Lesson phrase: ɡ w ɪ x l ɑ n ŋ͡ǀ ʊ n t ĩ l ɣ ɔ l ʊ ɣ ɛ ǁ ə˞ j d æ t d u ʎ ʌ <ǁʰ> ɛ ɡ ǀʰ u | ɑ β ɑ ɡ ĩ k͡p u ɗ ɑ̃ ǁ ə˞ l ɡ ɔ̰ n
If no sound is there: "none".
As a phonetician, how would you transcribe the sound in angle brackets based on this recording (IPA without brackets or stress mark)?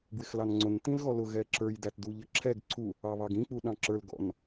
ǁʰ